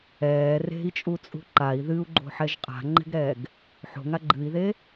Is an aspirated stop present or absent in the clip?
absent